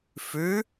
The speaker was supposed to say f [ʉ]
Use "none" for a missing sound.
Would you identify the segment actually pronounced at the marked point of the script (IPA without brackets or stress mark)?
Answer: ʉ